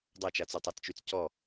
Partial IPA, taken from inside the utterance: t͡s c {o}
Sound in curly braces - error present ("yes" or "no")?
yes